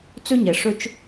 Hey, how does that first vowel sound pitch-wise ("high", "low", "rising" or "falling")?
high